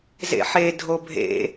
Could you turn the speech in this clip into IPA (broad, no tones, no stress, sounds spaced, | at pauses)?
z ḛ ħ e dʱ o bʱ ḛ